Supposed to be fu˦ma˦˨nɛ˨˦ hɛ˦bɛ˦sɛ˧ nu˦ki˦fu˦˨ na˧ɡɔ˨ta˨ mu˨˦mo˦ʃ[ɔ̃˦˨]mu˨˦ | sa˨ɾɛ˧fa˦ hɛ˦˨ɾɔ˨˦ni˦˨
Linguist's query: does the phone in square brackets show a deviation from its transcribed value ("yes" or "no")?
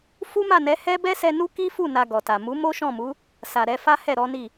no